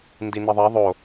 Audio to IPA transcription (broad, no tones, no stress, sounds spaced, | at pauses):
n d i n i ðˤ ɛ ðˤ o